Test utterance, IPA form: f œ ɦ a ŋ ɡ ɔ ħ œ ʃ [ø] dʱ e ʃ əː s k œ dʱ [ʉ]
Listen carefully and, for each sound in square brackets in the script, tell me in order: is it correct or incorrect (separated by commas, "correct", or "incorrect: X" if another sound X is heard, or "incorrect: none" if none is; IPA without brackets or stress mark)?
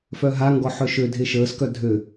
correct, incorrect: ø